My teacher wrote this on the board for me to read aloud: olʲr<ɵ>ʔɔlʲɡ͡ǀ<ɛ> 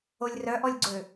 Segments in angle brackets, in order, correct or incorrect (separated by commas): incorrect, incorrect